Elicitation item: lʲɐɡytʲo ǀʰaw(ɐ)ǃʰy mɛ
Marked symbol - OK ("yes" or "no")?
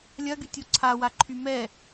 no